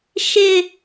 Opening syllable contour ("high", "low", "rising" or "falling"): high